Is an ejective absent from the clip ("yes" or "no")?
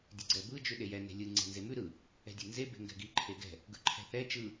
yes